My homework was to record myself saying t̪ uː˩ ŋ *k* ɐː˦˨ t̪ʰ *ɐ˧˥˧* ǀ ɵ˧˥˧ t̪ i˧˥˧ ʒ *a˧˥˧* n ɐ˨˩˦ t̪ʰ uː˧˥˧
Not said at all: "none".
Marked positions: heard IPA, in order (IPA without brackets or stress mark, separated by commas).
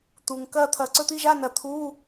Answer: k, ɐ˨˩˦, a˧˥˧